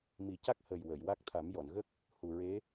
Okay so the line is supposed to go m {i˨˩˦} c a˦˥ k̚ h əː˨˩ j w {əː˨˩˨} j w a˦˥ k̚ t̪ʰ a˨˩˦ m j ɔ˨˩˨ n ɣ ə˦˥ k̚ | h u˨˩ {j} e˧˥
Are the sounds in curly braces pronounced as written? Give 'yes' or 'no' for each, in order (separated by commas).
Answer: yes, yes, no